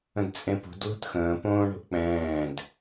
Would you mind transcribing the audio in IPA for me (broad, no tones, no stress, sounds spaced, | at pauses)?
ə̃ d t͡sʼ ẽ p ṳ d l o̤ t x ə̃ː p õː ɳ o̤ ʔ k͡p ɛ̃ː d